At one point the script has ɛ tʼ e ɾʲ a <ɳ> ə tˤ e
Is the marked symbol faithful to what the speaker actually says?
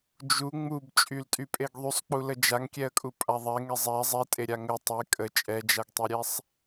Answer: no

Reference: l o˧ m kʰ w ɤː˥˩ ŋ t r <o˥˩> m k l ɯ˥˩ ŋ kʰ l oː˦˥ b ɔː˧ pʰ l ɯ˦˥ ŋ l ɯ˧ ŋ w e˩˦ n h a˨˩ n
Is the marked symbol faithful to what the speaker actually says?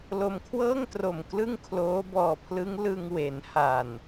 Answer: no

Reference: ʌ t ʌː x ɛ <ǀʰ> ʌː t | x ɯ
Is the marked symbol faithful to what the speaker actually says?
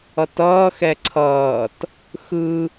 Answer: yes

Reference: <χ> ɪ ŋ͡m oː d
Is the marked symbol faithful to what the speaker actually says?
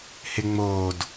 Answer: no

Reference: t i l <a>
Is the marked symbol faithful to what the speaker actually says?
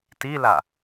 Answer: yes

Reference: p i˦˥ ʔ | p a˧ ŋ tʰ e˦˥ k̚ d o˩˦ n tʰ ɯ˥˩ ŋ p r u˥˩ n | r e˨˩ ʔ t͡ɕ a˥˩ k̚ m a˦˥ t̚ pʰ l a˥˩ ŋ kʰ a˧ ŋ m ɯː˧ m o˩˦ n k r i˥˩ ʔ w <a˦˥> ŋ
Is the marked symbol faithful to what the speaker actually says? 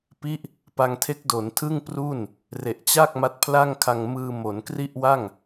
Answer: no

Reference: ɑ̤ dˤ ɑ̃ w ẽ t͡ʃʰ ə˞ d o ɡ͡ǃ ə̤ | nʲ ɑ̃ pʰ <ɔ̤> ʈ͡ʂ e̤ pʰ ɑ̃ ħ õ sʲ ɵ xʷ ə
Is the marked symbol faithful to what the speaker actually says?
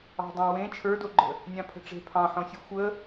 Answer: no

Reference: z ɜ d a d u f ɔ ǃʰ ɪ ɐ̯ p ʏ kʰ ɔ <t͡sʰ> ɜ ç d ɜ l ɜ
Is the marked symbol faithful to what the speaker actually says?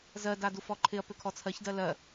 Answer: yes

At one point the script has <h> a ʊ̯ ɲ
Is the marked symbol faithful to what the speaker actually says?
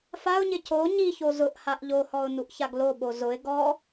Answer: no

